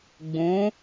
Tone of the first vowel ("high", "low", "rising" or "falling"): rising